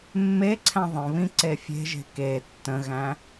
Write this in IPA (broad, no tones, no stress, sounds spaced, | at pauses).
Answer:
mː e ǀʰ æ̃ ðˤ ə̃ β ĩ ǀ e fʲ e̤ ʒ e̤ k e tː ə̃ ɣ æ̃